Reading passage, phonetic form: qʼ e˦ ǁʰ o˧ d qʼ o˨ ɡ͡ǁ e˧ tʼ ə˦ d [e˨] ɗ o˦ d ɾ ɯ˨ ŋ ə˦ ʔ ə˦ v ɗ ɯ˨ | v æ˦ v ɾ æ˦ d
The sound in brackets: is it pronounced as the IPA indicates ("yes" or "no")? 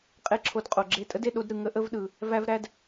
yes